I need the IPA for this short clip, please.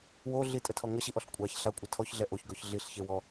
wo ɮitʼətʰɔ ŋəɕiʔɔɬ kʷʼaç ɬakʷʼə tʰɔçɮɛ ʔoçɡɔç ɮiɬçewɔ

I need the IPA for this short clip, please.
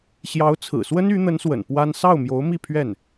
ɕjɑ˧˥ʊ̯t͡sʰɹ̩˨˩swə˥n y˧˥ n̪ə˧˥nswə̰˨˩n pwa˥n sɑ˥˩ʊ̯mjo˧˥ʊ̯mi˥˧ pʰɥɛ˥˩n

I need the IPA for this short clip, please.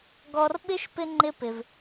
ɡɔ˧rɓɪ˦ʃ pɪ˦ ŋ͡ǃɪ˦pɪ˧v

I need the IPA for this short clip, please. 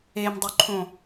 emdˤɵǃʰõ

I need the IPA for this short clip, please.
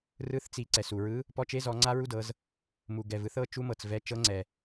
rɯ˧˥θt͡si˩˧ ǀɛ˩su˩ɹɯ˧˥ | pɔ˧˥t͡ʃe˧˥zɔ˩˧ ŋ͡ǀa˥ɹu˥dɤ˩˧z | mu˩ ɡɛ˩vɯ˧˥θɤ˧˥ t͡ʃu˧˥mɤ˩t͡svɛ˧˥ t͡ʃɤ˧˥ŋ͡ǀɛ˩

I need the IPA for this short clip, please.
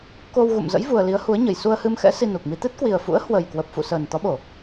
ko˧w ɣṵ˧˨mzə̰˧˥j vu˧ə̯ li˨˦ə̯hu˨˦ə̯ɲə˨˩j su˧ə̯hɨ˧mxɛ̰˧˥ si˧nu˨˩k̚mi˧ t̪ɨ˦˥t̚kwi˨˩ə̯fṵ˧˥ə̯ hwə˨˩jkwə˨˩p̚fṵ˧˨ səː˨˩nt̪ɔ˨˦ɓo˧˩˨

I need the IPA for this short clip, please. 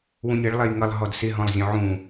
wũnʲʌɭ lˠɛjŋʌlˠ ɦɔdsɪ ɦɔ̃lˠzʲɔ̃ʕũ

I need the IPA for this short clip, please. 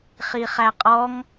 χiχæqʼɔŋ

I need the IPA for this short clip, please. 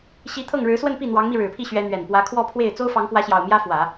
ɕi˧˥ t̪ʰɤ˥˩ŋɻɻ̩˧˥swə˥˧n pi˥˩n̪wɑ˧˥ŋmi˧ ɻɻ̩˨˩pʰi˥˩ɕɥɛ˧˥ n̪ɥɛ˨˩npwä˧˥ kʰwɔ˥˧pʰwe˥˩ɪ̯ t͡so˥ʊ̯fɑ˧˥ŋkwä˧˥ɕjɑ˨˩ʊ̯ mjä˥fwä˨˩˦

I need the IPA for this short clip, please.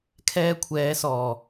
kʰɛː˧ kʷʰɛː˨˧sɔː˨˩

